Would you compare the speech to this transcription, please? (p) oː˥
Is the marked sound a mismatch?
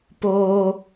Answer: no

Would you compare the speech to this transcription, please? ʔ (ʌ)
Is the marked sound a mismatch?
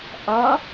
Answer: no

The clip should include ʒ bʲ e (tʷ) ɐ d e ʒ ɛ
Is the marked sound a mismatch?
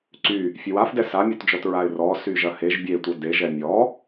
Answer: no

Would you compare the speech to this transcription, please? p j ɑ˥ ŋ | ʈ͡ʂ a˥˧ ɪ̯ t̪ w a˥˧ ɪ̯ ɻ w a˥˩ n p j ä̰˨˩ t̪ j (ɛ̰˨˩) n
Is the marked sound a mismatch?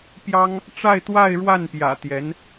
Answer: yes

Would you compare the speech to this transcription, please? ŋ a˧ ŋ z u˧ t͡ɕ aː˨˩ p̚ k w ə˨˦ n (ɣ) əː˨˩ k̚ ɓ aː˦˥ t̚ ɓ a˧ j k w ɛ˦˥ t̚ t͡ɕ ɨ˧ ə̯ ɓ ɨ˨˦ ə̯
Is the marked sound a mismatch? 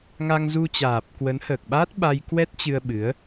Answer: yes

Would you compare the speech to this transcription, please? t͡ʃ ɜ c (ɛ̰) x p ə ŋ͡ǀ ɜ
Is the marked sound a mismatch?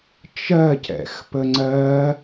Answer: no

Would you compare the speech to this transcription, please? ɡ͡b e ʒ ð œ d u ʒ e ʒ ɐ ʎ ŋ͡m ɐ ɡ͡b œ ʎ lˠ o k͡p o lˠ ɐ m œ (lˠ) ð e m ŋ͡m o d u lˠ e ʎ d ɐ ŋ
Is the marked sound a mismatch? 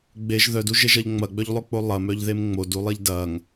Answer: yes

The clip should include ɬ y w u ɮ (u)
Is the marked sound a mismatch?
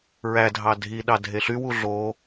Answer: yes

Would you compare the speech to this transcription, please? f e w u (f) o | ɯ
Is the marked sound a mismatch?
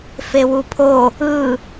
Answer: yes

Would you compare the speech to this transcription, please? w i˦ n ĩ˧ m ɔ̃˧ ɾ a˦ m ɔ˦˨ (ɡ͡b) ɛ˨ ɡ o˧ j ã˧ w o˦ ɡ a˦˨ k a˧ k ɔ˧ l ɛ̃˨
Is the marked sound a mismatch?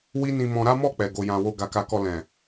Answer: yes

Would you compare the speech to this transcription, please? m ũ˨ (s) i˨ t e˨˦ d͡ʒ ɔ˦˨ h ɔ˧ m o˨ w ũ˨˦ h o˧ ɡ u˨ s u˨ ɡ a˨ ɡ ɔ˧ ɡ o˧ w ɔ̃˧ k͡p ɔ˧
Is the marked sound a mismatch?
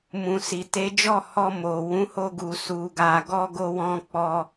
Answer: no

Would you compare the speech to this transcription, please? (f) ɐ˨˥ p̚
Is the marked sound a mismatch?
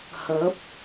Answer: yes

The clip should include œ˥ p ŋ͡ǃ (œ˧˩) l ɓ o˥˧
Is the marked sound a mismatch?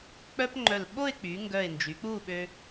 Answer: no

